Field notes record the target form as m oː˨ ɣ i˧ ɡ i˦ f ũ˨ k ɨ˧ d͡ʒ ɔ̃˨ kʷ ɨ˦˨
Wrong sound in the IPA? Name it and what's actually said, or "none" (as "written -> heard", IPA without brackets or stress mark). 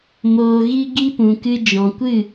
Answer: f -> p